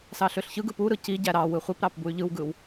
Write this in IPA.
s ɑ ɬ ø ɬ ç ɯ ɡ ɯ p u ɾ ɯ c i ɟ æ ɾ ɑ w ɯ χʷ e p ɾ ɑ p b u y̯ ʎ ɯ w ɡ ɯ w

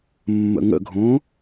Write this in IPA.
mː ə̰ ŋ ə̰ ɡʱ õ

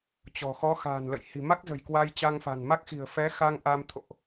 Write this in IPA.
t͡ɕ ɔ̤˨˩ x ɔ˨˦ x a̤ː˨˩ n l ə̰˧˨ j h i̤˨˩ m a˦˥ k̚ z ə̤˨˩ j k w a˧ j t͡ɕ a˧ ŋ f a̤˨˩ n m a˦˥ k̚ x i̤˨˩ ə̯ f ɛ˨˦ x a˧ ŋ ʔ a˧ m t̪ʰ o̰˧˨ ʔ

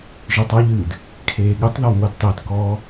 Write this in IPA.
ʒ ɨ tˤ ʌ ʎ ɨː d | kʰ eː ɠ ɨ tˤ ð ɔ ŋʷ e d tˤ e t k ɔː

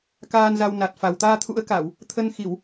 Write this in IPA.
k aː˧ n z a˧ w n a˨˩ t̚ f a˨˩ w t̪ aː˧ t̪ʰ ṵ˧˥ ə̯ k a˧˩˨ w | t̪ʰ ə˧ n x i˧˩˨ w

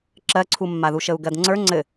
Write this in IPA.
ǁ ɜ ǀʰ u mː a ð u ʃ ə u̯ ɡ ɜ d ŋ͡ǀ ə˞ ŋ͡ǀ ɘ

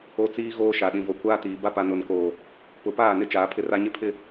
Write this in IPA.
o˦ t͡s iː˦ ɣ oː˦ ʃ a˨ ɗ ĩ˨ v o˨ kʷ aː˦ t iː˨ b a˦ p a˨ n ʊ˨ n k oː˨ | p ʊ˨˦ p aː˦˨ n ɪ˦ t͡ʃ aː˨˦ pʰ ɪ˦ r a˦ ɲ ɪ˦ pʰ ɪ˦

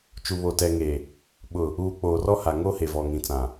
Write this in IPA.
t͡ʃ u˨ β o˨ t ɛ˨ ŋ e˨ | ɓ ʊ˨ | uː˨ k͡p oː˨ r ɔ˦ h a˨ ŋ o˦ h e˨ v ɔ˨ ŋ ĩ˨ t͡s ã˨

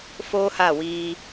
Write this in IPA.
f oː˦ h a˦˨ w iː˧

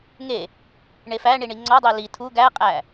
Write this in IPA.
ŋ e | ɳ e f æ ɳ i ɳ i ŋ͡ǀ ɒ dˤ e l i tʰ u ɡ æ qʼ æ

